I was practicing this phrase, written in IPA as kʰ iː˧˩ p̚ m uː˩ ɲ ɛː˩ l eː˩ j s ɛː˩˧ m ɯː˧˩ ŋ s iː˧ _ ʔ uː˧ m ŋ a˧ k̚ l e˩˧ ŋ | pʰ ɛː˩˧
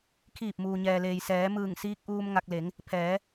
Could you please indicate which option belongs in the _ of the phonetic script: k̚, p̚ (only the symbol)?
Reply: k̚